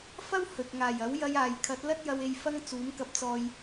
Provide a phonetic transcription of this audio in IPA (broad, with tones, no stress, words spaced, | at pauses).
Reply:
fɐ˥whɵ˨t̚ŋaː˨˩jɐ˨˥w jɐ˧jaː˨jkʰɐ˨˥t̚ lɐ˥t̚jɐ˧we˧j fɐ˧ŋ t͡suː˨˥mkɐ˧p̚t͡sɔː˧j